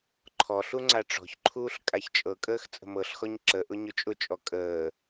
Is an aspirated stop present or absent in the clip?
present